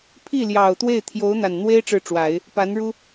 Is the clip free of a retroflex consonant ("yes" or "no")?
no